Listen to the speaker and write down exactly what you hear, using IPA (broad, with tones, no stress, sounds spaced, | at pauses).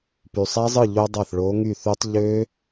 p y˨˩ sˤ æ˦˥ zˤ ɯ˥˩ ʎ o˦˥ dˤ ɑ˥˩ θ ɭ o˨˥ ŋ y˥˩ θ y˦˥ tˤ ʎ ø˦˥